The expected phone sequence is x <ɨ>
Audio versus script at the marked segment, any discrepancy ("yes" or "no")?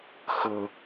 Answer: yes